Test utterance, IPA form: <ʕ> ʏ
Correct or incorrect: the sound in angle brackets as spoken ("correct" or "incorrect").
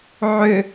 correct